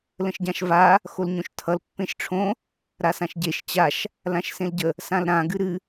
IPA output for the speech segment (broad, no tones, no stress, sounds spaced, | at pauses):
l ə̃ ʃ ɟ ã ʃ v a | x o l ɲ õ ʃ tʰ ʌ l pː ẽ ʃ ʈ͡ʂʰ õ | ɾ a s ã ʃ ɟ e ʃ t͡ɕ a ʃ | l ã ʃ s ẽ l ɟ ə | s ã l ɾ ã ɡ ɨ ɾ ɨ